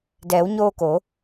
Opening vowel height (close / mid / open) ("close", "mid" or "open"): mid